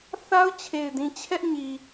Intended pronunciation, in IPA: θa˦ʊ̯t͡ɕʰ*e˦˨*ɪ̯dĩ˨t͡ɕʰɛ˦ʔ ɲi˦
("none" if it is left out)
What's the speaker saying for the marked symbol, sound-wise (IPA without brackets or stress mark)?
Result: e˨